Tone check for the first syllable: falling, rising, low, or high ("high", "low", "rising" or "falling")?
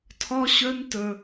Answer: high